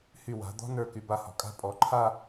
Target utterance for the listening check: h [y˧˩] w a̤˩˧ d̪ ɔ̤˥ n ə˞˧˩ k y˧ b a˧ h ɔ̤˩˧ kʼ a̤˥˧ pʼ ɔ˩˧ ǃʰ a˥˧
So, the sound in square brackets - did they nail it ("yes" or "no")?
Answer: yes